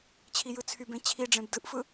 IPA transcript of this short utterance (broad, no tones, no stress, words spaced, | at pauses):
t͡ɕʰijɯt͡sʰybẽ t͡ɕʰiɖ͡ʐẽb dɯʔfɯ